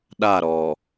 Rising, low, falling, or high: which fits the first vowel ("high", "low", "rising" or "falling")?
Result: falling